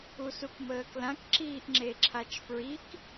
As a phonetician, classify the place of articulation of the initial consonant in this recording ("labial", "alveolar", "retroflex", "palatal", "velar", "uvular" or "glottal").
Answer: alveolar